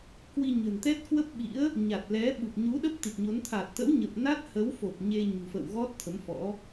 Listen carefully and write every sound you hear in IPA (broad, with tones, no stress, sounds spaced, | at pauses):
k w i˧ ɲ ə̤˨˩ n t̪ ɛ˦˥ t̚ k w ə˦˥ p̚ ɓ ḭ˧˥ ə̯ | ɲ a˨˩ t̚ l ɛ˨˦ ɓ u˨˩ p̚ ɲ u˨˦ ɗ ə˦˥ p̚ t̪ i˨˩ t̚ ɲ o˨˦ n t̪ʰ a˨˩ t̚ t̪ ə̰˧˥ w ɲ ə˨˩ p̚ n a˦˥ t̚ h ə˨˦ w f o˨˩ p̚ ɲ e˧ ɲ ṳ˨˩ f ə̰ː˧˨ w ɣ ɔ˦˥ t̚ t̪ʰ ə˨˦ m f ɔ̰˧˥